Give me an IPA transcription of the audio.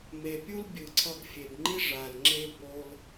me˨pʲu˦l bʲɯ˨ǀʰʌ˧ɡ fʲe˨bŋ͡ǃi˦ ʐa˨lŋ͡ǁe˦ bo˧l

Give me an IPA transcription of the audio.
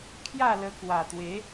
kʰja˥˧lə˧kwa˨˩t̪we˨˦

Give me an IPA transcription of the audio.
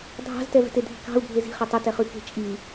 dʱɑ̤ztɛvɛ̤te dʱi̤kɑ̤u̯ bʱezi̤ χɛtˤɛtɛχʉ ke̤t͡ʃʼi

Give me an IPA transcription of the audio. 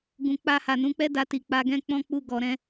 ɡũ˨k͡pa˧ ha˨nũ˨˦k͡pɛ˦ da˧ti˨ k͡pa˧ɡɛ̃˦k͡pɔ̃˦ k͡pu˧ɡɔ˨ɾɛ̃˧

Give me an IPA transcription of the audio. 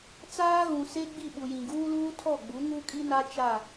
t͡saː˦ɣũ˨se˦ ɡ͡bi˦˨ɓu˨ jĩ˨ɡuː˦luː˦ tʰɔ˦˨ɡ͡bu˨˦ ŋu˦kʼi˦na˦ t͡ʃa˦˨

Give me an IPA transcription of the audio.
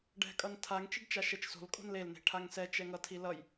ɖɛ̤kʼʌntʰaŋ t͡ʃiɖt͡ʃaʃɛt͡ʃso̤l kʼo̤nlel ne̤ʈʰaŋsɛ t͡ʃɛŋʌ tʰilʌj

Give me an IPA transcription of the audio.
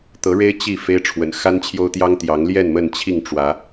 t̪ɤ˨˦ɻe˦ɪ̯ t͡ɕi˥˨ fe˦ɪ̯ʈ͡ʂʰwə̰˨˩n xa˦nt͡ɕʰjo˦ʊ̯t̪jɑ˦ŋ t̪jɑ˨˦ŋljɛ˥˨nmə˥˨n t͡ɕʰi˥˨ŋʈ͡ʂwä˨˦

